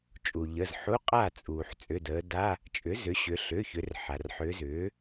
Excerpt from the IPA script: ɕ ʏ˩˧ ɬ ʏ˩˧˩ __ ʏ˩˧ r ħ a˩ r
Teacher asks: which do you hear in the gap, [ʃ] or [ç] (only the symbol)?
ç